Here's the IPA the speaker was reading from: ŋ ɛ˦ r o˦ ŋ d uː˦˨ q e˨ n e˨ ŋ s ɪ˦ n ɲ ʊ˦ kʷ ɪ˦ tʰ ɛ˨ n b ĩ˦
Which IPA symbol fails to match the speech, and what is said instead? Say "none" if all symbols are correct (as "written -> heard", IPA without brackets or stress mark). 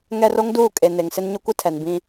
q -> kʼ